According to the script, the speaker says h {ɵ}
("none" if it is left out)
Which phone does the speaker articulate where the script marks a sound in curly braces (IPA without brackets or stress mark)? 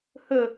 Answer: ɵ